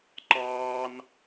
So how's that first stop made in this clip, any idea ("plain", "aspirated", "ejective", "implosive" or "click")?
click